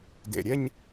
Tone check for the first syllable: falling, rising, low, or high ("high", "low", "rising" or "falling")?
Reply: low